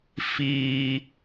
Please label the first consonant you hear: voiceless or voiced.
voiceless